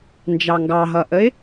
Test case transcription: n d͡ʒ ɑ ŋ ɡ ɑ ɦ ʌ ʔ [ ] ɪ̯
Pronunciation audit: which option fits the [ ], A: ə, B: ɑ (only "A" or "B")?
A